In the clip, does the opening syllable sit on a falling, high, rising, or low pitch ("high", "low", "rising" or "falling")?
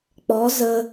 rising